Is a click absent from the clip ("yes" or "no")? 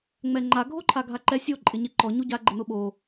no